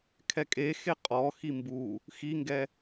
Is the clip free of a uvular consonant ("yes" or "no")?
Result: no